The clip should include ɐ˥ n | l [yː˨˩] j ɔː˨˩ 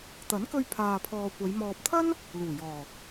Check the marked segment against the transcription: incorrect: uː˨˩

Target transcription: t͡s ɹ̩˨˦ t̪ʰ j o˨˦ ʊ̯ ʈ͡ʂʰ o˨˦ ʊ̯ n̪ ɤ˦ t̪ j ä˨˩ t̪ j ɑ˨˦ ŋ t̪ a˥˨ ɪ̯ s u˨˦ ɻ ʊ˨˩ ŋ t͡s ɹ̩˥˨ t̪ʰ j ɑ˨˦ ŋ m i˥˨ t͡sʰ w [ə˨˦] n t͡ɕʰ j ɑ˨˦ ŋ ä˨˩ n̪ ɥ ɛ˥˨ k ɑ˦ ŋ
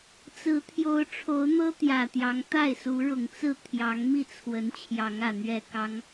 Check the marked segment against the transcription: correct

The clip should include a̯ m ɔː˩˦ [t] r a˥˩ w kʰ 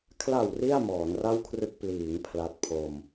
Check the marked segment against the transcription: incorrect: n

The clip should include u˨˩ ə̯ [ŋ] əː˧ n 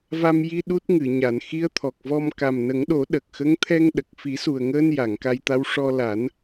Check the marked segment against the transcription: correct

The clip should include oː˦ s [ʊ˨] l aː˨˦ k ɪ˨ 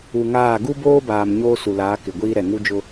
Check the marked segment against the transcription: incorrect: u˨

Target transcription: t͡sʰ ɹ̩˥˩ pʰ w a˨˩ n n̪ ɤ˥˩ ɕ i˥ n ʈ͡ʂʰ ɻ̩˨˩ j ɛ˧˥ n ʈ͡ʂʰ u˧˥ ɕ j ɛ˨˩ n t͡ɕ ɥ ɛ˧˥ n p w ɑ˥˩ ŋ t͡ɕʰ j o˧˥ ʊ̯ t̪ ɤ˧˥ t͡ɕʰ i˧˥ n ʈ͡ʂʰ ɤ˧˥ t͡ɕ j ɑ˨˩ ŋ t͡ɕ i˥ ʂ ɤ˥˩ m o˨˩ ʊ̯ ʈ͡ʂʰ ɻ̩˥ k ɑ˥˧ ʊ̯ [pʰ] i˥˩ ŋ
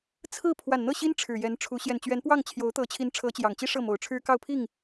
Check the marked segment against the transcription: correct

